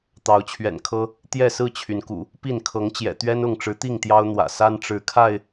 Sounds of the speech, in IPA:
t̪ɑ˨˦ʊ̯t͡ɕʰɥɛ̰˨˩nkʰɤ˦ | t̪jɛ˥˨sɹ̩˥˨t͡ɕʰy˩nkṵ˨˩ | pi˥˨nkʰɤ˨˦ŋt͡ɕjɛ̰˨˩ t̪ɥɛ˦nʊ˥˨ŋʈ͡ʂɻ̩˨˦t̪i˥˨ŋ t̪jɑ˦ʊ̯n̪wä̰˨˩ sa˦nʈ͡ʂɻ̩˨˦kʰa˥˨ɪ̯

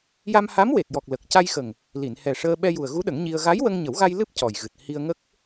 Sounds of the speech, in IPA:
ja˧mha˧˥mwe˨˩t̚jɔ˨˩k̚ lə˨˩k̚ca˧jxə˨˩ŋ | li˨˩˨nhɛ˨˩ʂəː˧ ɓɛ˧ju˨˩ə̯ɣu˧˥ɗə˨˩˦ŋ ɲi˧ə̯ ɣa˧˥jwə˧ŋɲə˨˩˦wɣa˧j lɨ˦˥p̚ cɔ˨˩j ɣɨ˨˩t̚ hi˧ə̯ŋə˦˥k̚

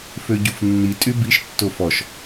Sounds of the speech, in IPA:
føɟufnːi tʼybiʃ tːofɔʃ

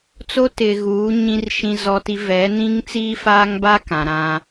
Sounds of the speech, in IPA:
t͡so˦ tɪ˨ɣuː˨˦ ɲĩ˦rʃĩ˦zɔ˦ti˦ vɛ˨˦ nĩ˦ŋt͡siː˦faː˦ŋba˦ kã˨ɾã˦

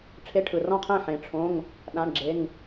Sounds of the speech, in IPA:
ʈ͡ʂʰe˧˥˧ʈʰɯ˨rɔ̃˥˩qʰẽ˥˩ ħẽ˨˦ʈ͡ʂʰõ˧˥˧ŋ | ɗã˧˥˧ɳɡ͡ǁe˧˥˧ŋ

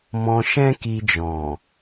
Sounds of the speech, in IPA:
mɔ̃˧ ʃɛ̃˦ki˧d͡ʒɔ̃˨

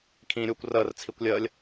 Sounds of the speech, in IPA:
kʰĩːɾʲukʷ rəːr t͡sʰikʷlʲəːlʲ

